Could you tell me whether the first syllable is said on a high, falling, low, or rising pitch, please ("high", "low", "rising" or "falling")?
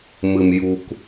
low